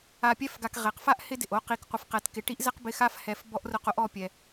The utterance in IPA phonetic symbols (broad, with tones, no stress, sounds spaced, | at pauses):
a˨ pʲ ɛ˦ f ɡ a˨ k ʁ e˩ q f a˥ ʔ h ɪ˦ d ɪ˩ ʔ o˦ q i˨ k qʷ ɪ˨ f q ɛ˨ t k ɪ˨ ʈ i˥ ʔ z ɛ˥ q b ɪ˦ x a˥ f h ɛ˦ f b ɔ˥ ʔ r ʊ˦ q o˥ ʔ ɔ˦ pʲ ɛ˨